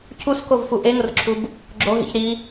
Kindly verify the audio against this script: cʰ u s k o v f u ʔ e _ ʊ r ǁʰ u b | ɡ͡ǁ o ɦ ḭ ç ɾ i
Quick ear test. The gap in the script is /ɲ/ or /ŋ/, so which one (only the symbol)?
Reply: ŋ